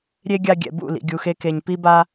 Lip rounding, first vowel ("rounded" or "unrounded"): unrounded